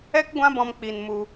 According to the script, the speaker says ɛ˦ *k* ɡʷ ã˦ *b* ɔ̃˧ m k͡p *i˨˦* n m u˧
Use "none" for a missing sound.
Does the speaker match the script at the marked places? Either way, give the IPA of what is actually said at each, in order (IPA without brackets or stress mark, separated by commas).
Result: k, b, i˧